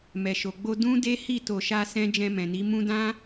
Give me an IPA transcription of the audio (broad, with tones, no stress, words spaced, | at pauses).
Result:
mɛ˨ʃo˨ɡ͡bo˧ dũ˦de˦hi˦˨ to˧ʃa˦sɛ̃˦ d͡ʒɛ̃˧mɛ̃˨ni˨˦ mũ˦ dã˦